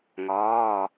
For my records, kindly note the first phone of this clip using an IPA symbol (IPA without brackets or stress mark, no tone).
ŋ